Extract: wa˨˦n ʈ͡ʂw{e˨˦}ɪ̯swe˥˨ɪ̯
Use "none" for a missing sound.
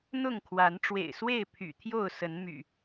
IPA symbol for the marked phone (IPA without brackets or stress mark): ḛ˨˩